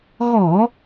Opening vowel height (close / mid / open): mid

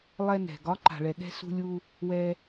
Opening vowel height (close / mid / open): mid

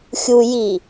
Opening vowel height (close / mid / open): close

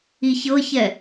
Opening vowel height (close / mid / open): close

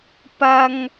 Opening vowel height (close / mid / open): open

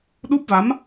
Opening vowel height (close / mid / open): close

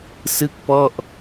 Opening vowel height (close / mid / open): close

